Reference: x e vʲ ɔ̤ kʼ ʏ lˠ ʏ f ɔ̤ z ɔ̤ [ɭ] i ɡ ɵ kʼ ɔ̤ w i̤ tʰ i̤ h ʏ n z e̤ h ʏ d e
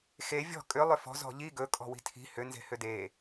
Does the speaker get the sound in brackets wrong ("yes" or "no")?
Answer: yes